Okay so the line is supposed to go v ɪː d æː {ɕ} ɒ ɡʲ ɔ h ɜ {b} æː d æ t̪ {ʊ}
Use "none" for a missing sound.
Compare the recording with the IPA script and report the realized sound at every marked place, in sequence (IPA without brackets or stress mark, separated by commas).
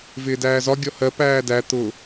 z, p, ʊ